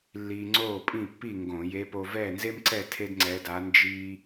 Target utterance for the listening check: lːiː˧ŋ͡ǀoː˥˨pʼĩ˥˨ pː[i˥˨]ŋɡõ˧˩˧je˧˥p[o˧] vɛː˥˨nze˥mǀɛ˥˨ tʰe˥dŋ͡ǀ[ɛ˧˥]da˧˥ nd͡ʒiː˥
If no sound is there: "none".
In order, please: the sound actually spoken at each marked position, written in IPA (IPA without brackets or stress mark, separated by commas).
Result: i˥˨, o˧, ɛ˧˥